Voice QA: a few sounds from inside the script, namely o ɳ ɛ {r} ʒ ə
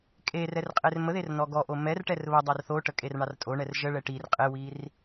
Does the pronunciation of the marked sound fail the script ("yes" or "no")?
no